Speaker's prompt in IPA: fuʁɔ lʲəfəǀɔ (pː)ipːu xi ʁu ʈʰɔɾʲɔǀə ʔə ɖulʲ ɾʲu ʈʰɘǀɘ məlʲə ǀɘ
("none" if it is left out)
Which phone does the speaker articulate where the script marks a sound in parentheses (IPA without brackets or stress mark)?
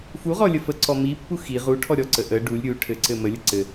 m